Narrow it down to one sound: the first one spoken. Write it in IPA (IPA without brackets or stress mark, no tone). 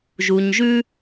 ʒ